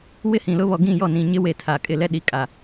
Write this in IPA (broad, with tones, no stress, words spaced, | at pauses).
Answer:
wɪ˦hĩ˨lʊ˦βɔ˨ ɡĩ˦˨jɔ˦˨nĩ˨ ɲɪ˦we˨ tʰa˨kʼɪ˦˨lɛ˦ ɗi˨kʼa˨